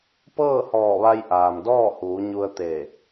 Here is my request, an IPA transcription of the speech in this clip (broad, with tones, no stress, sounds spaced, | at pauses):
p ɤː˥˨ h ɔː˧˩ ʋ a˧ j ʔ aː˩ m d ɔː˥˨ h uː˩˧ ɲ u˧ ə̯ t̪ e˧˩